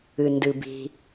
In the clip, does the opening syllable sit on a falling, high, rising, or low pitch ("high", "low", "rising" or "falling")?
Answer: low